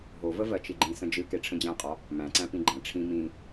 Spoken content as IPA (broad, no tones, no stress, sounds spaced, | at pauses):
ɦ o v ə v ɜ t͡ʃ i ɡ͡ǃ ĩ s ə̃ d͡ʒ ɨ k e ʈ͡ʂʰ ə̃ d͡ʑ æ̃ qʼ ɒ | m æ̃ ǀ æ̃ p ĩ ɡ͡ǃ æ̃ ʈ͡ʂʰ ĩ m ĩ